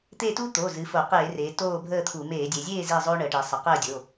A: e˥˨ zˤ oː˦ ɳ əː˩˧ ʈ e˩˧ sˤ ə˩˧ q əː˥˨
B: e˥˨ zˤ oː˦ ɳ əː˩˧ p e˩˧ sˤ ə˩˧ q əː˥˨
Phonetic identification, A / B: A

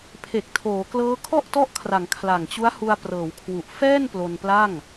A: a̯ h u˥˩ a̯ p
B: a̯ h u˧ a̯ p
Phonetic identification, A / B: B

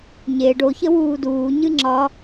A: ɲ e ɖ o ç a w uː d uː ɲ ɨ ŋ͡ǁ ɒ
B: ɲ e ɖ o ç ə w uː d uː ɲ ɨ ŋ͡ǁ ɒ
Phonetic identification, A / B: B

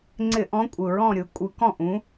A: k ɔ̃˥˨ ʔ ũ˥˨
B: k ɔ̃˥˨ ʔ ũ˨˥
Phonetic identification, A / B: B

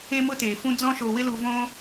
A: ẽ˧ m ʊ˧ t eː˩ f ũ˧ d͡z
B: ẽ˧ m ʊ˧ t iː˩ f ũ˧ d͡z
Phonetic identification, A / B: A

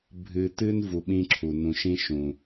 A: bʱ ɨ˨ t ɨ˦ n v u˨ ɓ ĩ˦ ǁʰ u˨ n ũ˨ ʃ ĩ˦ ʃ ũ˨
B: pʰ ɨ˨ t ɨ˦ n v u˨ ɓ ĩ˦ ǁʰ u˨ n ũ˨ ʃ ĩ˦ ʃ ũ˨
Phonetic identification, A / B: A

